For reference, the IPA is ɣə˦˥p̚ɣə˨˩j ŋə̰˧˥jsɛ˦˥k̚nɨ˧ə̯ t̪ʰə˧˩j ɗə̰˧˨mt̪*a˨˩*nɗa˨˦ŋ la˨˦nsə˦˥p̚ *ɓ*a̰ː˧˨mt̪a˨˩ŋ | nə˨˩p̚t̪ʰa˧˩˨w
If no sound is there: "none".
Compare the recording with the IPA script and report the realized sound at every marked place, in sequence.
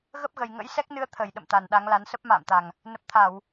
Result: a˨˩, m

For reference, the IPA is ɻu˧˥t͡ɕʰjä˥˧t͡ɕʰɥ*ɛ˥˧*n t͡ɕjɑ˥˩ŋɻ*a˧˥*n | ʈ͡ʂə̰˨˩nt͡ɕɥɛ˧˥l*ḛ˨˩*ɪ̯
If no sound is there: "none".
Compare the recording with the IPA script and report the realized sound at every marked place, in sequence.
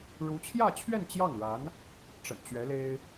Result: ɛ˥˧, a˧˥, e˥

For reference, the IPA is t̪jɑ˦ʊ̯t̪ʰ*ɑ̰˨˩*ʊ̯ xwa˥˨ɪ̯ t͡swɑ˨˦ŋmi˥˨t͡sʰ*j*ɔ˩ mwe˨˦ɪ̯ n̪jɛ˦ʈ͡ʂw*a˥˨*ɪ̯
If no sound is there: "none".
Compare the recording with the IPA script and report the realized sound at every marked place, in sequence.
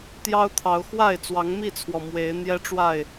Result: ɑ˨˦, w, a˥˨

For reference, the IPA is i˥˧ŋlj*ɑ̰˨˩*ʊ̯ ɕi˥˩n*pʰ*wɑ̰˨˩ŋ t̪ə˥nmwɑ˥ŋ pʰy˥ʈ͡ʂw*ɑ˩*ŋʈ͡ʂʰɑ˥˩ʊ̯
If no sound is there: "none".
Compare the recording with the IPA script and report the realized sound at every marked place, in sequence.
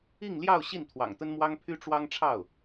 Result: ɑ˥˧, t̪ʰ, ɑ˥

